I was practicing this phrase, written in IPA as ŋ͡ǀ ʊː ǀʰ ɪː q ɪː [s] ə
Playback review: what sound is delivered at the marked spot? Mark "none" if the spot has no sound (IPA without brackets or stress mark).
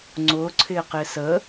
s